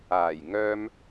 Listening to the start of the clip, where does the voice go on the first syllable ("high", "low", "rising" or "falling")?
low